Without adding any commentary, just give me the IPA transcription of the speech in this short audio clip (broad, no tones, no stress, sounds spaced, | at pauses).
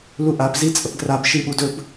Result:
l u ʔ a p z i t͡sʼ ə p ɡ r a b ʃ i ɓ u d ɵ b